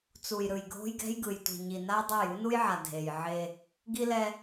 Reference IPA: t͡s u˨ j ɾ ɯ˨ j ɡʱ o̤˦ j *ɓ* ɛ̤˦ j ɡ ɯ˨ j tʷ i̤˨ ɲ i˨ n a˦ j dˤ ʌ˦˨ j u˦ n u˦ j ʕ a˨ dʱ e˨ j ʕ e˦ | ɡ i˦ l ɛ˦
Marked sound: incorrect: ɡ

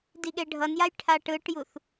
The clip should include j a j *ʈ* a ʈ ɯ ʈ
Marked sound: incorrect: ʈʰ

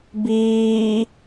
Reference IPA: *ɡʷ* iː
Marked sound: incorrect: b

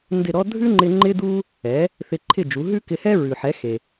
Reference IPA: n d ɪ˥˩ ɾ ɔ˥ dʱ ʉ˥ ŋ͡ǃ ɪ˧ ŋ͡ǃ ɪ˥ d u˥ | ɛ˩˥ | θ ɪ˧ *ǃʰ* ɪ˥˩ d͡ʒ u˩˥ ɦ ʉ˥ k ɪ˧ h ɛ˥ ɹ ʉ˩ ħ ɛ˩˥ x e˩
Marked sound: correct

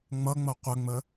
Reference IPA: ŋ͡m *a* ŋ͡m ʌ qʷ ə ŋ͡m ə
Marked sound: incorrect: ʌ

